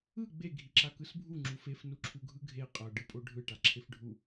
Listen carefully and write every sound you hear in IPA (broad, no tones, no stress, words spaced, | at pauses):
ɯ ɡ͡be ɡʱiǁakɯsbʱu ŋ͡ǁufef nuǁʰuɡʱɯɡʱe qʼʌ ɖɯpʼoɖʱɯ ʈaǁʰefɖʱu